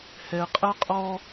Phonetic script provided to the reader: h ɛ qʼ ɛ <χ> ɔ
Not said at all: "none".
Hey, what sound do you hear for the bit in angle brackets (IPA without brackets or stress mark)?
qʼ